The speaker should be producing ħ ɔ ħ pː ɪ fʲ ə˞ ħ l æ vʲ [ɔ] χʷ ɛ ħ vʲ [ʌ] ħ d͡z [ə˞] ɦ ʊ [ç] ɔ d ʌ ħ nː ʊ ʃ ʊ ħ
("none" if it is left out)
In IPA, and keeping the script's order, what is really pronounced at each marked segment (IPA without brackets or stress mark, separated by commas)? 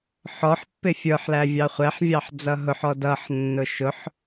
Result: ɑ, ɑ, ʌ, ħ